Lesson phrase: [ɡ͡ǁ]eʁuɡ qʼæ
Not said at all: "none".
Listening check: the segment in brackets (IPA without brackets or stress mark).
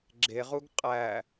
ɡ͡ǁ